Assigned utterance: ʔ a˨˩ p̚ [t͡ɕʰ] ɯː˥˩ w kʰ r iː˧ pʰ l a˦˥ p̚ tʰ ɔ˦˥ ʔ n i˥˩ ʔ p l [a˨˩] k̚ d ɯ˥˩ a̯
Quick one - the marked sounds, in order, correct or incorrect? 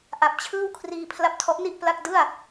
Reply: correct, incorrect: a˥˩

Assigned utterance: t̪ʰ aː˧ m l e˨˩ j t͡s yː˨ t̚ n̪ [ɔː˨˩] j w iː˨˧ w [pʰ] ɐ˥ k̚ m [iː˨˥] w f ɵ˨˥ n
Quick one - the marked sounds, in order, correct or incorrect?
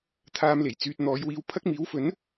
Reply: incorrect: ɔː˨˧, correct, correct

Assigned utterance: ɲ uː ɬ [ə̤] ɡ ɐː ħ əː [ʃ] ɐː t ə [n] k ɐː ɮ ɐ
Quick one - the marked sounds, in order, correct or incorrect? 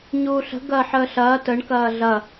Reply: correct, incorrect: ɬ, incorrect: ɳ

